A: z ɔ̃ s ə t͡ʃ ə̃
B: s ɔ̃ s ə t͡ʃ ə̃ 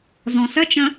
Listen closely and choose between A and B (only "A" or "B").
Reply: A